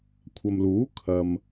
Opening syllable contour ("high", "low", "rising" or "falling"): low